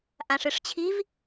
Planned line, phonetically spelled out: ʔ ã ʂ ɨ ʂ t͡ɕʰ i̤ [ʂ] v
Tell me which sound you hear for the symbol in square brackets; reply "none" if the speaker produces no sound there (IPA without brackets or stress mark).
none